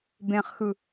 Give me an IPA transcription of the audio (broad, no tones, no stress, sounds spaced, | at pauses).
b ẽ χ x ɯ